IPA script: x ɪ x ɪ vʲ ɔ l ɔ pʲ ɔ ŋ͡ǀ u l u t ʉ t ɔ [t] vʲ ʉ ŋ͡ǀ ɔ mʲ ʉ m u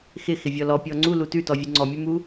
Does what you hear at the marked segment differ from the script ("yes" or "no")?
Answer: yes